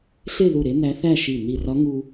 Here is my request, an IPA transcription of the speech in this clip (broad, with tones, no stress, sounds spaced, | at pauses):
ɬ e˥˧ ð u˧˩ ɾ e˧˥ n æ˧˥ θ æ˥˧ ʃ i˧˩ n i˧˩ r ɒ˧˥ ŋ u˧